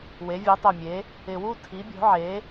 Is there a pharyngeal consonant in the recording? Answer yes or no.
yes